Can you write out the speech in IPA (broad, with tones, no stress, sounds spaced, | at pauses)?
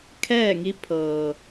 kʰ ɛː˥˨ ŋ i˧˥ pʰ ɤː˩